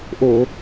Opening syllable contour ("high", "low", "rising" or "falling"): low